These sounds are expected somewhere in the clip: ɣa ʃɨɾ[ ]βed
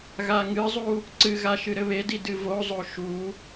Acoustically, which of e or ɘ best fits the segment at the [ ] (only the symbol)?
ɘ